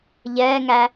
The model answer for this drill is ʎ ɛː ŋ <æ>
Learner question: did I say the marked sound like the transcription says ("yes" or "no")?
yes